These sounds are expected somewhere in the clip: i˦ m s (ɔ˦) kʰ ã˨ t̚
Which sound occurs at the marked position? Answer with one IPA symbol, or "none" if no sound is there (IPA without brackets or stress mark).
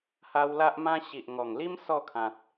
ɔ˥˧